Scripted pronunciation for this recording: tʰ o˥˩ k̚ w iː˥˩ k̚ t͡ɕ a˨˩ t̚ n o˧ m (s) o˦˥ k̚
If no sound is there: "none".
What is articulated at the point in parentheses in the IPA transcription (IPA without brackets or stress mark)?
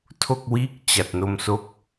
s